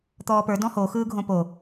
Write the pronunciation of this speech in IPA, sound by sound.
t̪ ɔː p ə˞ d ɔ̃ h o x ɯː ɡʱ õ p o

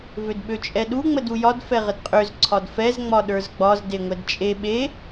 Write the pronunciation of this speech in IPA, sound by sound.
v ø d ɓ ø t͡ʃʼ ɛ ɗ u ŋ͡m ə d u j ɒ d f ɛ ʁ ə d qʼ ø z ǀʰ ɒ d f ɛ z ŋ͡m ɒ ɗ ə˞ z ɡ͡b ɒ z d e ŋʷ ɛ d t͡ʃʼ e ɓ e

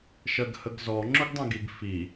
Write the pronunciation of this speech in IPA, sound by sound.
ʃ ɜ ɡ h ə ɡ z ɔ ŋ͡ǁ ʊ ɡ dˤ ɛ̃ ɡ i ɡ f i

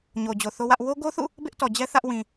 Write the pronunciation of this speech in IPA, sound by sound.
ɲ o˨ d͡ʑ o˨ θ o˦ w ä˦ ʔ w o˦ ɡ o˦ θ ṵ˦˨ | b ɪ˦ ʔ t ɔ˨ d͡ʑ ɛ˦ θ ä˦ ʔ w ĩ˨

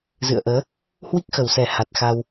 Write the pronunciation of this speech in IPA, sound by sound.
z ɨ̰˧˨ ə̯ ʔ əː˨˦ | h w i˦˥ k̚ x ə˨˩ w s ɛ˨˩ h a˨˩ t̚ x a˧ w

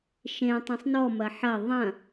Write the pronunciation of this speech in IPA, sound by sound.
ʃ ẽ tˤ ũ sˤ n ɔ m ɐ ħ ɐ ðˤ ɐ̃

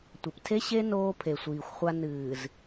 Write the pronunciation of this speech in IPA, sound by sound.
tʷ ɐ˨ p tʰ e˦ ɕ e˦ n oː˦ pʰ e˨ sʷ iː˨ xʷ χʷ a˦ n ɨː˨ z

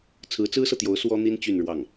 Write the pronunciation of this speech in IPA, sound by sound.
t͡sʰ ɹ̩˧˥ t͡s ɹ̩˥ s ɤ˨ t̪ j o˧˥ ʊ̯ s w ɔ˥ n̪ i˥ n t͡ɕ y˥˧ n ɻ w ɑ˥˩ ŋ

